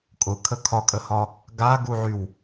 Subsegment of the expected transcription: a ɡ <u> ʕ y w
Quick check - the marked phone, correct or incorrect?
correct